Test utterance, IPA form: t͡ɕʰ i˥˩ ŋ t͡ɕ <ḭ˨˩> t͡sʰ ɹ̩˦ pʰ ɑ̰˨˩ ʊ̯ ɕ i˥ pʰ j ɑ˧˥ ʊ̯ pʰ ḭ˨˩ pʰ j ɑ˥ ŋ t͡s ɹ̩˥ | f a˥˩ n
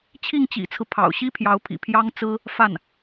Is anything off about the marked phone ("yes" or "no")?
no